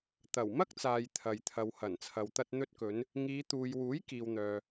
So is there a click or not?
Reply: no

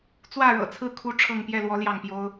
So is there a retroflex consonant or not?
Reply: yes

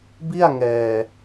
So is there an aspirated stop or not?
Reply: no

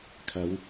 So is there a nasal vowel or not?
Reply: no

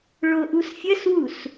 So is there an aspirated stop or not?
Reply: no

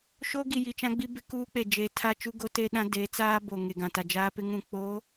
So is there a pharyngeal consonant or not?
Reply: no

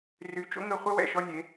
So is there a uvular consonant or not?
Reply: yes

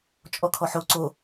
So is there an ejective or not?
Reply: yes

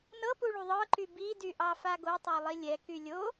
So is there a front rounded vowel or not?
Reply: yes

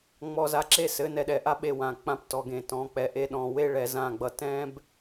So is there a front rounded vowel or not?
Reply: no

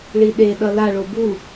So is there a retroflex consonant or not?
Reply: yes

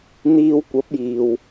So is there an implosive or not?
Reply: no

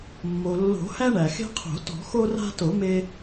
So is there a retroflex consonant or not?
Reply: yes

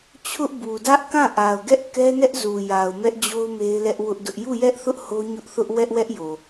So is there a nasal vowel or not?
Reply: yes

